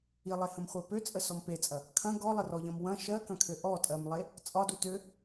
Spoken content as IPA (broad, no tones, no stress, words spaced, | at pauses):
ilˠehə̃mχʷɜ pøt͡sʼəsɔm pet͡sʼɐ | kʰɐ̃ ɡɔlˠərɔʎɐ̃m wɐ̃ ʃɜkɐ̃kʰø ʔɔtʼɜmlˠe | t͡sʼɒdu tø